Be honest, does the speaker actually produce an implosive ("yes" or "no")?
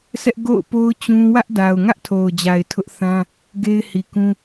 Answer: no